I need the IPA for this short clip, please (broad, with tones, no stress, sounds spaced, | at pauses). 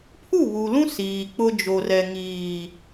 pʰ u˦˨ β u˨ l ũ˦ s iː˨ k͡p ʊ˦ d͡ʒ o˨ r ɛ˨ ŋ iː˨